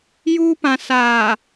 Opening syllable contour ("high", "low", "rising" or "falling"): high